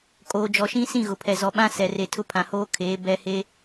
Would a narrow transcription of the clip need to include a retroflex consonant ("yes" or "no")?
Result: no